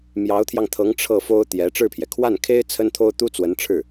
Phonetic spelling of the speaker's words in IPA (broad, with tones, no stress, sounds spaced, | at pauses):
m j ɑ˧˥ ʊ̯ t̪ʰ j ɑ˧ ŋ t̪ʰ ɤ˧˥ ŋ ʈ͡ʂʰ ɤ˥˩ f o˥ ʊ̯ t̪ j ɛ˧˥ ʈ͡ʂ ɻ̩˥˩ pʰ j ɛ˩ kʰ w a˥˩ n kʰ e˥ ɪ̯ t͡sʰ ə˥ n t̪ʰ o˥ ʊ̯ t̪ u˥ t͡s w ə˧˥ n ʈ͡ʂʰ ɻ̩˥˩